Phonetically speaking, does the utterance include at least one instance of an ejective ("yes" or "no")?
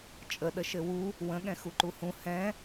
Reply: yes